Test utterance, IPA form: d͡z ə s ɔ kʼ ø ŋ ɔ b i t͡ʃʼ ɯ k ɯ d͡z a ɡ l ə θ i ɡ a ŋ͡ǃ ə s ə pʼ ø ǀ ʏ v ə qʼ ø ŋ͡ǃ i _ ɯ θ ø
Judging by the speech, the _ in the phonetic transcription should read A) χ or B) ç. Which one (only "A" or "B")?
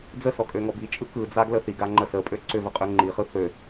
A